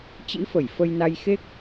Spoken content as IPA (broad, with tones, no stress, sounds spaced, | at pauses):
t͡ɕ ḭ˧˥ f ə˧˩ j f ə˧ j n a˧ j x e˦˥ k̚